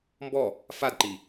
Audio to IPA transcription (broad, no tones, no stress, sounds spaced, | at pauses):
m b ɔ | f a d ǃ i